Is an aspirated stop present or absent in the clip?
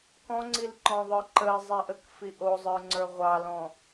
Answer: absent